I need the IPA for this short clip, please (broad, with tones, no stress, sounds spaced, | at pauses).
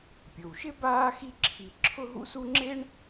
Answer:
pʲ o˩ w ʃ ɪ˥ b aː˥ x i˥ ǁʰ i˧ ǁʰ ʊ˥ ɦ ṵ˥ s u˥ ŋ͡ǁ e˥ ɳ